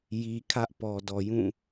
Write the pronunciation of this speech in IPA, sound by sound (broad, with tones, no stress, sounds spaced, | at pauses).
j i˨ kʰ ä˦ ʔ p ɔ˨ d ɔ˨ j ũ˦˨